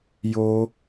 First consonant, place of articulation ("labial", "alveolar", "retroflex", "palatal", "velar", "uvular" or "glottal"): palatal